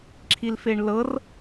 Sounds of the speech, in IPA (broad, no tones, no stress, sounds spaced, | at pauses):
ǁʰ i l f e ɳ l ɤ r